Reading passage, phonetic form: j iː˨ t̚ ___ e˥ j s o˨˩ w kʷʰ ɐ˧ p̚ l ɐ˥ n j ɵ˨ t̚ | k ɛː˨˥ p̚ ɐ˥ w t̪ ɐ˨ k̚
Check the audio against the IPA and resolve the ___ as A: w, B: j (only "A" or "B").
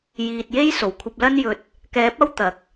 B